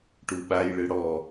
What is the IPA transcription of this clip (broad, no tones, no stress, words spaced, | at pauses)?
ʈuɓajɭɯ ɽɔ